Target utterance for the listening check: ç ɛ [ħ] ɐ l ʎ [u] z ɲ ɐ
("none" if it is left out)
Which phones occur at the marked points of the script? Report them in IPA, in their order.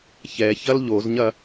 ç, o

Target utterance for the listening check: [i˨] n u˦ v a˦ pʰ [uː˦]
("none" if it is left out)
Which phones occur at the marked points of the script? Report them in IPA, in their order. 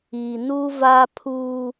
i˨, uː˦

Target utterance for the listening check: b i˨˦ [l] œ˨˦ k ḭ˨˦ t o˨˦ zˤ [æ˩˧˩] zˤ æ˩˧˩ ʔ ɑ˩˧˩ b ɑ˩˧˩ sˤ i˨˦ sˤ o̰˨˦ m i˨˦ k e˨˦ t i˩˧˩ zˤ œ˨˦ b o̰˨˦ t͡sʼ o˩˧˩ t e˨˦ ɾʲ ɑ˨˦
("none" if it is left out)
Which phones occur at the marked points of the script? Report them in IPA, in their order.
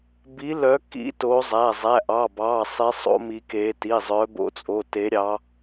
l, æ˩˧˩

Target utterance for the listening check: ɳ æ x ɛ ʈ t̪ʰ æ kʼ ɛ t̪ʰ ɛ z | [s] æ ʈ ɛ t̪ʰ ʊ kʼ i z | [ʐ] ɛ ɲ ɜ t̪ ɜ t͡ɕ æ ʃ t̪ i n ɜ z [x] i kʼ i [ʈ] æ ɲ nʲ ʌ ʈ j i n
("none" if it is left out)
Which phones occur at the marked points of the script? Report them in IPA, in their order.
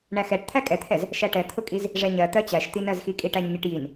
ʃ, ʐ, x, ʈ

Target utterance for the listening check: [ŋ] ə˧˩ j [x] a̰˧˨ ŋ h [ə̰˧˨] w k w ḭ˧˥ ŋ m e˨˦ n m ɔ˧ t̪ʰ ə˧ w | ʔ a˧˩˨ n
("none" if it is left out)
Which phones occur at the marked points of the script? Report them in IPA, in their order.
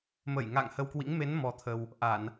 m, ŋ, ə˧

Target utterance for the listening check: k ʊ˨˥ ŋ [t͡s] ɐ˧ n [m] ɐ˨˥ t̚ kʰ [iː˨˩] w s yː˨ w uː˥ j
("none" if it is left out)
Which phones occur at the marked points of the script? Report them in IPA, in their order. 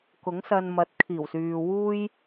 s, m, iː˨˩

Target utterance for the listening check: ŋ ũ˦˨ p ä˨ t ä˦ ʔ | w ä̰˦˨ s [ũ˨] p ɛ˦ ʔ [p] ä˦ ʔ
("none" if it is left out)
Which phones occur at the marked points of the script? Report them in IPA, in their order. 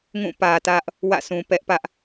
ũ˨, p

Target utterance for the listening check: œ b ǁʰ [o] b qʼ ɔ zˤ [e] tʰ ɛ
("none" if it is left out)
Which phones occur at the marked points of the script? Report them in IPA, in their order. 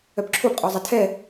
o, ɛ

